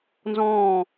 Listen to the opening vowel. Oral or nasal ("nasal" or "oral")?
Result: nasal